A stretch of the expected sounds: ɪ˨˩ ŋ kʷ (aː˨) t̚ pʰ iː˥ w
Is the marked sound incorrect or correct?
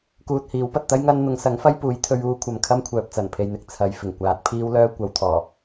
correct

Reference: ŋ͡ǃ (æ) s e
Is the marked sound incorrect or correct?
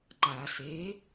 incorrect: a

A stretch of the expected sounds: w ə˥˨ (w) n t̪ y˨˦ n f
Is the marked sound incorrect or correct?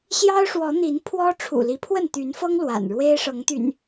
incorrect: none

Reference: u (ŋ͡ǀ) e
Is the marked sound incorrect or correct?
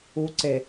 incorrect: ǀ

